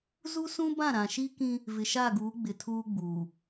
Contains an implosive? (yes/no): no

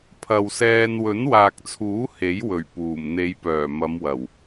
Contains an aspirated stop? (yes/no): yes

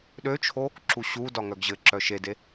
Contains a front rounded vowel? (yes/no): yes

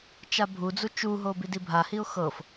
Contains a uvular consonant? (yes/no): no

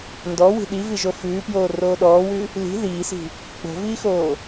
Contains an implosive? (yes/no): yes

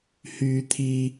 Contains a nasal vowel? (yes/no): no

